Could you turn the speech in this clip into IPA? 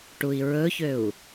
ʈ u i̯ ɹ ɵ ç ø u̯

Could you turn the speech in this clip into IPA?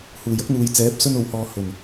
h uː˨˩ j ɐ˥ k̚ n̪ uː˨ j t͡s ɛː˨˥ p̚ s ɵ˧ n o˨ w h ɔː˨ h ɵ˨˩ n

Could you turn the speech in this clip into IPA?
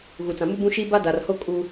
ɣ u˨ t͡s ã˨ m u˦ b ũ˦ ʃ i˦ b a˦ d a˨ r h o˦ kʼ u˦

